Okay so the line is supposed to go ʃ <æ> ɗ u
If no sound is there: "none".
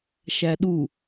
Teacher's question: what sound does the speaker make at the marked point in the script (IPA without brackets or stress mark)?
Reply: æ